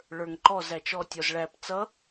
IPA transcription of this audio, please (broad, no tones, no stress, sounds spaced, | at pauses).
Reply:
ɭ ə˞ ŋ ǃ ɔ z æ t͡ʃ ɔ tʲ ɔ z ɭ æ p t͡s ʌ